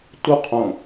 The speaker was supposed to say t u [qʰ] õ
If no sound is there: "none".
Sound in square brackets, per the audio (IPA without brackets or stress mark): qʰ